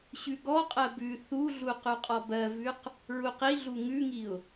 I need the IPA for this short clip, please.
ɕ ʉ ɡ ɔ qʼ ɜ b ʉ θ u ɮ u q ʉ qʼ ɔ b ɜ v ʉ q | ɹ u q i ɮ u ŋ ʉ ŋ i ʊ̯

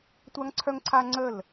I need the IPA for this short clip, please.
tʷ a˦ ŋ ǀʰ œ˦ ŋ ǀʰ a˦ ŋ͡ǀ ə˦˨ l

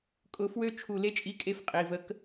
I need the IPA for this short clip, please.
kʼ ʊ˧˥ f w ø˥ t͡ʃʰ u˧˩ l e˥ t͡ʃʼ i˧˥ kʼ e˧˥ f qʼ i˩˧˩ v ə˧˥ k

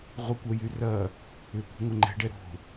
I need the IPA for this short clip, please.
ʁʷ ɪ kʷ œ j y r ɐ | ʏ kʷ ə̤ ŋʷ ə ŋ͡ǃ ɛ̤ ɖ ɛ ɾ o̤

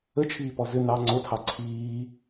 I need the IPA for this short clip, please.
ə t͡ʃʰ iː p ɔ z ʏ n ɑ ŋ͡ǀ o tʰ ɑ ǀʰ iː

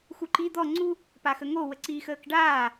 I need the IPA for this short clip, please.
x u ǃ i d̪ ɔ ŋ͡ǀ u | p a x ə ŋ o w ə ǀ iː x əː k ɖ aː

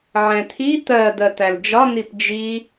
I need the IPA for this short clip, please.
ʕ ɛ̃ t̪ʰ i t̪ ɜ d̪ ɜ t̪ æ l d͡ʒ ɒ n̪ i p d͡ʒ i

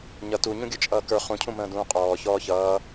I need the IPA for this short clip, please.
ɲ ʌ t u ɲ ũ ɡʲ ə˞ t͡ʃʼ ʌː k ə˞ χ ũ cʰ ũ m ə̃ː d ũː qʼ ɔː ç ɔː ç ʌː

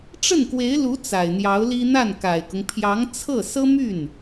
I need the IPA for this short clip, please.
ʈ͡ʂ ə˥˩ n k w e˧˥ ɪ̯ l u˧˥ t͡s a˨˩ ɪ̯ n̪ j ɑ˧˥ ʊ̯ l i˥ n̪ a˥˩ n k a˨˩ ɪ̯ k ʊ˦ ŋ pʰ j ɑ˧˥ ŋ t͡sʰ ɤ˥˩ s ɤ˥ m y˥˩ n

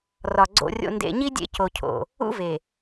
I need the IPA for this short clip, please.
r ɒ˨ ɡ͡ǀ o̰˨ rʲ o̰˨ n d ḛ˨ ɲ i˦ dʲ ḛ˦ c o˨ cʰ o̰˨ | ṵ˦ v e˨

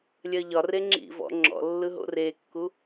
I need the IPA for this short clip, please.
lʲ ɜ ʎ ɒ r e ŋ͡ǁ ḭ v ɔ̰ ŋ͡ǁ ɔ̰ lː ɯ ɦ o̰ r e kː u

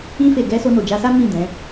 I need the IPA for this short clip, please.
ĩ˧ f e˨ ɡ ɛ˧ s o˧ n o˨ d͡ʒ a˧ s a˦ m ĩ˦˨ d ɛ̃˨˦

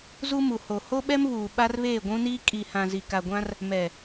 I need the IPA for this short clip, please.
z u˦ m u˨ h o˨ h o˦ ɓ ɛ˦ m β uː˨ ɓ a˦ r β eː˦˨ ɡʷ ũ˦ n iː˦ kʼ i˨ h ã˨ z i˨ k a˨ ɡʷ ã˦ r | m ɛ˨

